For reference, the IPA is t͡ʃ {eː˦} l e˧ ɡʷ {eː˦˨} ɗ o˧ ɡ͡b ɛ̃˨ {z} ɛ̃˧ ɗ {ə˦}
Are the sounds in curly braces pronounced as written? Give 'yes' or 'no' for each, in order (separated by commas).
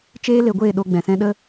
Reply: yes, yes, no, yes